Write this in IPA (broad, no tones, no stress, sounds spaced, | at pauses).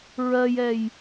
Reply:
ɹ ɜ j ɛ j